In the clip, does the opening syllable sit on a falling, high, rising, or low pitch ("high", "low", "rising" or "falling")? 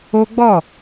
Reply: high